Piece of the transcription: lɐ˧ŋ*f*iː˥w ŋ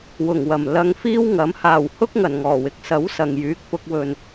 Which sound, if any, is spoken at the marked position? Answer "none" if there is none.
f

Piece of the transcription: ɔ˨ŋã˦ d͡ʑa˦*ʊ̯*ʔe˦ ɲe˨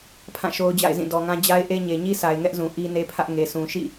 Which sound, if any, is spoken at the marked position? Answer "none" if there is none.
ɪ̯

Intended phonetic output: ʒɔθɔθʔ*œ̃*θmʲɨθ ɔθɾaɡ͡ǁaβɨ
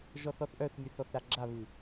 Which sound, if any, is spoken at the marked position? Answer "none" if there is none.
œ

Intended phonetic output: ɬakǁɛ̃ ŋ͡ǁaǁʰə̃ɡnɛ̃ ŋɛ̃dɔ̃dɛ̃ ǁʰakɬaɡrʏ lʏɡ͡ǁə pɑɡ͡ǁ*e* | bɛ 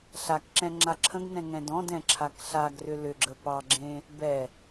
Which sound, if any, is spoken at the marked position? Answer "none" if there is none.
ẽ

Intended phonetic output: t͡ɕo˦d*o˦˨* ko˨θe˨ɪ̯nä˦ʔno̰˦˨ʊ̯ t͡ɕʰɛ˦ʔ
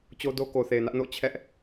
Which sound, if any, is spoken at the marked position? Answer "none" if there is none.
o˦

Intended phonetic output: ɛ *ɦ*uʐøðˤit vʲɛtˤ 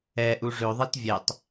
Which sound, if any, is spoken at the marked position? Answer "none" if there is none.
ʔ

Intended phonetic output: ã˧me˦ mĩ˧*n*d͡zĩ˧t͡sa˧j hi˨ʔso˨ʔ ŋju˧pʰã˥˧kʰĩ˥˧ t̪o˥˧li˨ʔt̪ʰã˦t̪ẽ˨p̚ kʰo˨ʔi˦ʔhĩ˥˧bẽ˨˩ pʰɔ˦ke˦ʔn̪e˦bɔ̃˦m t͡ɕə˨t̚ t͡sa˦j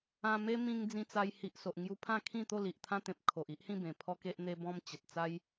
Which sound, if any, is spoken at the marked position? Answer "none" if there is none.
ŋ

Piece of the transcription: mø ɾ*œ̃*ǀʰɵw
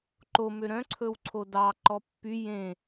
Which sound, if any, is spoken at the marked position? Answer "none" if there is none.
œ̃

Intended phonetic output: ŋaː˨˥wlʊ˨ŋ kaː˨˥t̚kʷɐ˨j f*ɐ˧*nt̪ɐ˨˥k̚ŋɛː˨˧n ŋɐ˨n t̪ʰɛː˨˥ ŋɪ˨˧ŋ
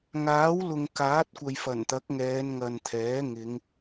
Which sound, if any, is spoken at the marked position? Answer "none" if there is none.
ɐ˨˩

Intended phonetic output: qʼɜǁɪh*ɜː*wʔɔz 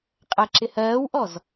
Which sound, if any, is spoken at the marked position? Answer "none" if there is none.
ɜː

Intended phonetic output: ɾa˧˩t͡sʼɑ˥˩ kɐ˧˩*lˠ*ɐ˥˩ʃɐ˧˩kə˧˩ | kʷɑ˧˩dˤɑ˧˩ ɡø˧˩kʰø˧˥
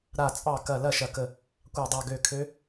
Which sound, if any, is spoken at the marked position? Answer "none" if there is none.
l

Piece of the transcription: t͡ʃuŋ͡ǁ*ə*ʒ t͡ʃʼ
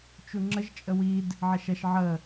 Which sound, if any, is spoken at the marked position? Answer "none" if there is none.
ə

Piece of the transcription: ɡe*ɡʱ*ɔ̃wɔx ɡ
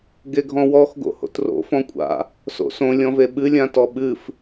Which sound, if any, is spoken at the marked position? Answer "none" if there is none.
ɡʱ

